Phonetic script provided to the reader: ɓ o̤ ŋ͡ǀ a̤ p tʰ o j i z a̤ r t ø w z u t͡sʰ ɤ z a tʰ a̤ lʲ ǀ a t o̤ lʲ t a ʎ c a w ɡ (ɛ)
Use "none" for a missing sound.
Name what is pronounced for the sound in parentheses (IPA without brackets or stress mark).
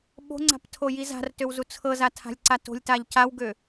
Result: ø